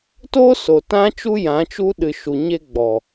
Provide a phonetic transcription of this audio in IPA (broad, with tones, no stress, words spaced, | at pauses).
to˦ so˨tã˦ t͡ʃu˦ jã˨˦t͡ʃu˦ɗɨ˨ ʃu˨ɲe˧ ɡ͡bɔ˨